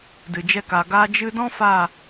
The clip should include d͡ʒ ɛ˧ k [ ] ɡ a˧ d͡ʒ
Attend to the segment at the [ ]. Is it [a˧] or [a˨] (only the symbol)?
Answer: a˨